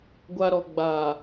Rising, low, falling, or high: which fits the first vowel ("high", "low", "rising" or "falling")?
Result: low